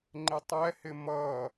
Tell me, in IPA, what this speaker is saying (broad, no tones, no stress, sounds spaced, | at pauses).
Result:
ŋ͡ǃ ɪ tˤ ɛ h ɪ m ʌ